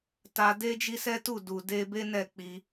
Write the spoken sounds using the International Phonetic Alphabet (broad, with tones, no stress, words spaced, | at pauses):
ta˧de˦d͡ʒi˦sɛ˦ tu˦˨du˨ de˧ be˦nɛ˦˨ k͡pi˧